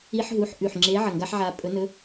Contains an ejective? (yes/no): yes